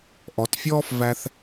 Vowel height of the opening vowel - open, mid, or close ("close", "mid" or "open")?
mid